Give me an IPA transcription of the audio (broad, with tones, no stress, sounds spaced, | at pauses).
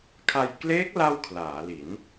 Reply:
kʰ a˧ j k l eː˦˥ k̚ l a˥˩ w kʰ l aː˩˦ l i˩˦ n